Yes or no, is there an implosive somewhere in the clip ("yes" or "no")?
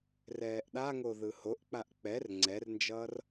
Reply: yes